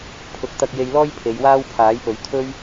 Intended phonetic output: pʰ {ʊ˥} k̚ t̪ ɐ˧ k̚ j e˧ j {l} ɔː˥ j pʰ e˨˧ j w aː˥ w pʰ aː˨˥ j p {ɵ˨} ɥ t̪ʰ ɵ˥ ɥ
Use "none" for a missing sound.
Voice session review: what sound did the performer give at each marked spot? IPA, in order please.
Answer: ʊ˨˥, l, ɵ˨˧

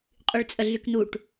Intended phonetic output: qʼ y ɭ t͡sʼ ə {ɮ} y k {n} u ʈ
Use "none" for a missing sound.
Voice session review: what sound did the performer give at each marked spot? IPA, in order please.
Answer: ɮ, n

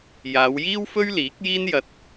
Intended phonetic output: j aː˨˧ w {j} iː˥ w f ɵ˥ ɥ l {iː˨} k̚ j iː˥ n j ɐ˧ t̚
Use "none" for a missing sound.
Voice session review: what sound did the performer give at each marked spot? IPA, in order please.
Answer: j, iː˨˥

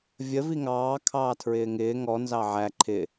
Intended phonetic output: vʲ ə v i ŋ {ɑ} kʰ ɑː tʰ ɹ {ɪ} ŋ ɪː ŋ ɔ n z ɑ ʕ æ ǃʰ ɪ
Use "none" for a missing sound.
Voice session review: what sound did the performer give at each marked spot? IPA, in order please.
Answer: ɑː, ɪː

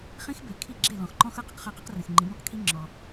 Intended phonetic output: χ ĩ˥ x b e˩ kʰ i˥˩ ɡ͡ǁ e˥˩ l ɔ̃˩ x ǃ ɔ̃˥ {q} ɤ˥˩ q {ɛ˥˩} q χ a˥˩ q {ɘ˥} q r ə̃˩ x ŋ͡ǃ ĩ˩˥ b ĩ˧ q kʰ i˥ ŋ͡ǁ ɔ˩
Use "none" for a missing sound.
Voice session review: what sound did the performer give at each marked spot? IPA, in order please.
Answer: x, ə˥˩, ɛ˥

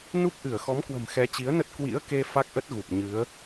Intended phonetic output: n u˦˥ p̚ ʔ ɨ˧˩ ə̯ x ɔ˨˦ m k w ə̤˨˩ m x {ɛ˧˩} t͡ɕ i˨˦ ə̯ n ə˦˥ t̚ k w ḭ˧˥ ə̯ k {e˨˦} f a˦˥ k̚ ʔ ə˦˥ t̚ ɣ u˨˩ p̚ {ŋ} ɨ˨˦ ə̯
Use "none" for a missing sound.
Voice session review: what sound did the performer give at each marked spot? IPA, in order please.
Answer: ɛ˨˦, e˧, ɲ

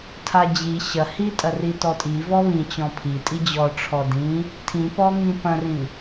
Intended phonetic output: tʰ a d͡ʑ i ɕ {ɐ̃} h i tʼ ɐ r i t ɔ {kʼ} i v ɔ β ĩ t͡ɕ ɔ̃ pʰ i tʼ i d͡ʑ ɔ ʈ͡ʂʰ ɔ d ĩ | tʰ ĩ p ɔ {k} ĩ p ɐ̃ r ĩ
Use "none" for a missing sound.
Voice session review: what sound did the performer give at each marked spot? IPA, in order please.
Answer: ɐ, tʼ, ŋ

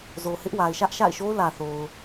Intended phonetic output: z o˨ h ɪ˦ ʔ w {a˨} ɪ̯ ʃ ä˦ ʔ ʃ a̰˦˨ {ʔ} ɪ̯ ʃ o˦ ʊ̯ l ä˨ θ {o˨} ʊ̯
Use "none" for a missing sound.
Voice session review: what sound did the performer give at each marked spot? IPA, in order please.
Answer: a˨, none, o˨

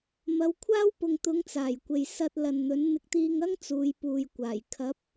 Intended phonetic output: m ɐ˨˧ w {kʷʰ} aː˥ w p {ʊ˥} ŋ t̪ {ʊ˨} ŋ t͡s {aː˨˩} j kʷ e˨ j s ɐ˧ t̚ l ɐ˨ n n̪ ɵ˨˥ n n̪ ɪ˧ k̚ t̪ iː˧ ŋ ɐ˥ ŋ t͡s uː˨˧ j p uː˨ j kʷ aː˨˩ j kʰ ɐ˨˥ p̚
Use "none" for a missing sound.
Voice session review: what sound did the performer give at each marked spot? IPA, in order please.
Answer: kʷʰ, ʊ˨, ʊ˨˧, aː˨˩

